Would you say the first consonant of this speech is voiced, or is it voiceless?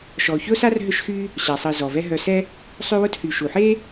voiceless